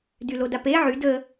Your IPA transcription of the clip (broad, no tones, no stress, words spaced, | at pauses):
dylodape ʕyd ə